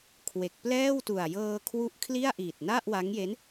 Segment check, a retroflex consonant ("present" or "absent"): absent